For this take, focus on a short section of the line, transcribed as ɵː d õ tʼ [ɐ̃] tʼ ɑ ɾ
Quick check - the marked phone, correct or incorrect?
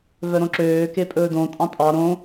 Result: incorrect